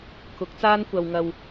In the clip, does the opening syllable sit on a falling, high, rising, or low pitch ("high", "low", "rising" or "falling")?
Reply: rising